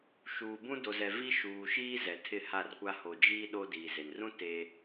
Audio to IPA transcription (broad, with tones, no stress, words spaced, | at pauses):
ʃuː˨bũ˦ do˨zɛ˨ vi˦ ʃuː˨ʃiː˦ zɛ˨tʰɪ˦˨ha˦˨rkʷa˦ ho˨d͡ʒiː˦ ɗo˦diː˨ze˨n rũ˦ te˦